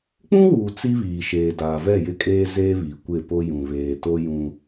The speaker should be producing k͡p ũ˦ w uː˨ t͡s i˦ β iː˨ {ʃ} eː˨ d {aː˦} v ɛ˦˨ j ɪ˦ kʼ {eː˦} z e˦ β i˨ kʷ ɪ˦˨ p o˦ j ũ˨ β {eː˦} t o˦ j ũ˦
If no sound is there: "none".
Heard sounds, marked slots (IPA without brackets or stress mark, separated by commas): ʃ, aː˨, eː˦, eː˨